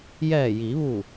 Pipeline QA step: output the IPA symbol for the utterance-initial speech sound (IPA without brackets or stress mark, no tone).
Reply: j